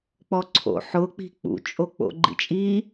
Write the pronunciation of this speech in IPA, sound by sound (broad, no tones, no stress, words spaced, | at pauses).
k͡pɔǀʰo̰ ħʊk͡pi̤ k͡pṵt͡ʃʼok͡po̰ ɡ͡ǃḭt͡ʃʼi